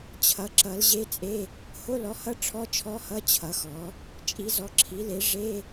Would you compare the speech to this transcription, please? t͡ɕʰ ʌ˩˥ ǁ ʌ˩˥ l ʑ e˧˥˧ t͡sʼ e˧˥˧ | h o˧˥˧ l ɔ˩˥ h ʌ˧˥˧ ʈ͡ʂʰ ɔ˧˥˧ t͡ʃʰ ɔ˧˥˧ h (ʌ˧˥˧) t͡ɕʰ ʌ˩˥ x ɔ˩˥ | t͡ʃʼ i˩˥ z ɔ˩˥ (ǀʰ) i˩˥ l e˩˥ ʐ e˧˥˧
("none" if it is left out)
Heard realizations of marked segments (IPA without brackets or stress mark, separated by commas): ʌ˧˥˧, ǁʰ